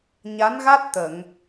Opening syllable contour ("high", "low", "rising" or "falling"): rising